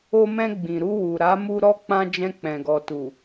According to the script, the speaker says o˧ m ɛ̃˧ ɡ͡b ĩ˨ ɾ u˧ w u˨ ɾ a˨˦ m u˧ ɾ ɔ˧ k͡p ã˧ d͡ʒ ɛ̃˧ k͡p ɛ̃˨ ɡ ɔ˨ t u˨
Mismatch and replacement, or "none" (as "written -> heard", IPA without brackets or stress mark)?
none